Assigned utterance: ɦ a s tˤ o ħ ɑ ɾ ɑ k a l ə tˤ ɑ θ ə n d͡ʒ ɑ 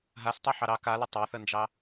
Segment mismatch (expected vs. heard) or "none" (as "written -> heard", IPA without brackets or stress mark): none